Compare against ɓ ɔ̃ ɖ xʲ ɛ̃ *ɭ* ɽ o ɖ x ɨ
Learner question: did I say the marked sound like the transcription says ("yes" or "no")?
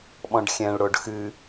yes